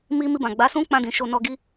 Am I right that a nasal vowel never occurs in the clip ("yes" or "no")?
no